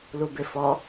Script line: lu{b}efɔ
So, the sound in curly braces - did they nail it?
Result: yes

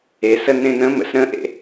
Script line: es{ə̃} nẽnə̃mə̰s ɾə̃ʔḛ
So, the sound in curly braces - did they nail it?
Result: no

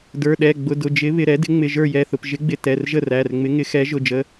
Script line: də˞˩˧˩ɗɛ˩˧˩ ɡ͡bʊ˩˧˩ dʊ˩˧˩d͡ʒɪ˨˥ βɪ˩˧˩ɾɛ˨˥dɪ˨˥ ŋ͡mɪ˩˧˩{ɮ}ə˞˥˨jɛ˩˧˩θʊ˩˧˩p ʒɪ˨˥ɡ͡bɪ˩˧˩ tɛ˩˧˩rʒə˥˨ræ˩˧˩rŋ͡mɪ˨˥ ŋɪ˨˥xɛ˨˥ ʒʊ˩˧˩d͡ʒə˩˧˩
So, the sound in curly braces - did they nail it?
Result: no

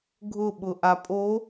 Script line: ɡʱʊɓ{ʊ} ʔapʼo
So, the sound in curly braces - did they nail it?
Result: yes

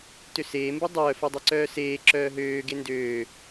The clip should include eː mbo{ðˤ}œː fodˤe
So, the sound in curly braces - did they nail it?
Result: no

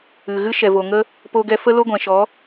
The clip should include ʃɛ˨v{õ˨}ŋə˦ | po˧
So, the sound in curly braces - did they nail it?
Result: no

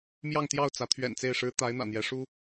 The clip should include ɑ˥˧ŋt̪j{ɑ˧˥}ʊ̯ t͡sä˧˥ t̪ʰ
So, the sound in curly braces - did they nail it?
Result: no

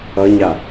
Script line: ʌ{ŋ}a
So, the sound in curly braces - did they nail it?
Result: no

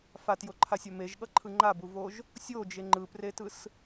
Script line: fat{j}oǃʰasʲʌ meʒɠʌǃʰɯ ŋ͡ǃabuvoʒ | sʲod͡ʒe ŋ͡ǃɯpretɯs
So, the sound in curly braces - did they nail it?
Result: yes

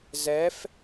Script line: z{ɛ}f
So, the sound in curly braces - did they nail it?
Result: yes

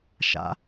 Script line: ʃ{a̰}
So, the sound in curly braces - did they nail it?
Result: yes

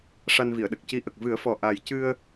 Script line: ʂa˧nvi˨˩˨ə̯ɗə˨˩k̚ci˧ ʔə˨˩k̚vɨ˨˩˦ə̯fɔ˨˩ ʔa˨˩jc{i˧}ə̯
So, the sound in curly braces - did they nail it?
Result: no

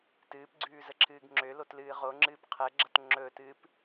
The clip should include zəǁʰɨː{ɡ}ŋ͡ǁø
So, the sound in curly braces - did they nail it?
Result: yes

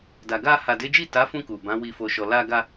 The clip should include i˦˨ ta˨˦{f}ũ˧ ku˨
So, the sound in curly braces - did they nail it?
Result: yes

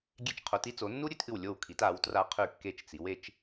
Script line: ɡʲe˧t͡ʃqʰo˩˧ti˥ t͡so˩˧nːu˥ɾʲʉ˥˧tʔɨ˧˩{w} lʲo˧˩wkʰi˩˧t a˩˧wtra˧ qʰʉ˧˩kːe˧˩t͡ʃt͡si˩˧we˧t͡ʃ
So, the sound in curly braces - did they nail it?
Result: yes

